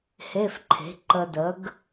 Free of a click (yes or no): no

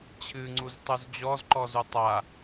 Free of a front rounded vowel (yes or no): yes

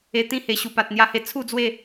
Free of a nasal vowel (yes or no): no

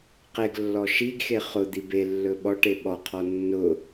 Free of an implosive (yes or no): no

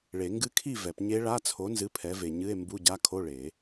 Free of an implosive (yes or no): yes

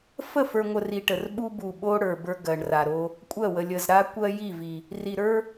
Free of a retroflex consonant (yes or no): no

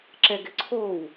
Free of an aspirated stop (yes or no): no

